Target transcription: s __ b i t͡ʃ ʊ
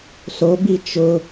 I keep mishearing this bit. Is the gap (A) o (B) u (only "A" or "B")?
A